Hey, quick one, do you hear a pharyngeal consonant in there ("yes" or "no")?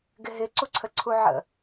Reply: yes